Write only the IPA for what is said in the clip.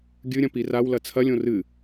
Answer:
ɡʲɨɾʲɐ̃ pirawlɐ t͡sʰɐlʲõ rɨ

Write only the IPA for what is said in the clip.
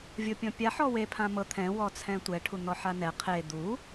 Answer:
vʲopʲɔ̃pʲa ħɔwe pʰãmɤ t̪ʰɛ̃ wɔt͡sʰɛ̃tʷɛ ʈʰun̪ɔħanɛ qʰe d̪u

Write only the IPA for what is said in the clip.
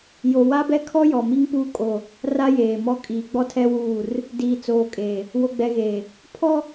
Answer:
jo˨wa˦bɛ˦kʰɔ˦ jɔ˨mi˦ŋpuː˦ kʼo˦˨ | ra˦jeː˨mɔ˦ kʼiː˨ɡ͡bɔ˦tʰɛ˦wuː˦˨r | diː˨t͡soː˨kʼeː˨ | wo˨ɡ͡bɛ˨ɣeː˨ | pʰɔ˦

